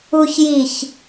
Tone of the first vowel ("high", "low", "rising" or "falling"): low